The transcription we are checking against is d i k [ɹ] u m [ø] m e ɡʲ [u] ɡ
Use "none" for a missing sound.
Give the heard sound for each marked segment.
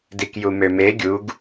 j, ø, u

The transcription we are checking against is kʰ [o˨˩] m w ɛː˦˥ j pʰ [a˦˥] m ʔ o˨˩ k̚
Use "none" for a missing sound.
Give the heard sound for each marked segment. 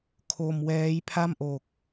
o˧, a˥˩

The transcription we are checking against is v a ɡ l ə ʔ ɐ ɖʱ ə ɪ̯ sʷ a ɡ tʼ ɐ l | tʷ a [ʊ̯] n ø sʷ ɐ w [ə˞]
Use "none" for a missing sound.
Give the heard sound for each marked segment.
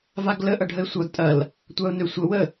ʊ̯, ə

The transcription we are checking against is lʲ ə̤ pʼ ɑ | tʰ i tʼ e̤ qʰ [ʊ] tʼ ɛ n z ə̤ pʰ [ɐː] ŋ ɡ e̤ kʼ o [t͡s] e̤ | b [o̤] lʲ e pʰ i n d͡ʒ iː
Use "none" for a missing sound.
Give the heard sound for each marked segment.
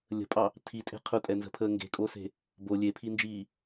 ʊ, əː, s, o

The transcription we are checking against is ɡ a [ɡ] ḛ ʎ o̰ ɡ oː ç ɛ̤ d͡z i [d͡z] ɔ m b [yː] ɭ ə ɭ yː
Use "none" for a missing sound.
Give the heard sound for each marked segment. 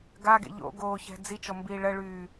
ɡ, t͡ʃ, iː

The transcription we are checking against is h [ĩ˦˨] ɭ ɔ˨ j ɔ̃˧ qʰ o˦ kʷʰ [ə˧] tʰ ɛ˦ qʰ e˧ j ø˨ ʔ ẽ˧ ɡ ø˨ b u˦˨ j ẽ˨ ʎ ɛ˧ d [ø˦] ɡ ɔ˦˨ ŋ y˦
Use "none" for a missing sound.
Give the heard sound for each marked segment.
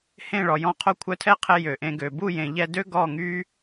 ẽ˦˨, œ˧, ø˦

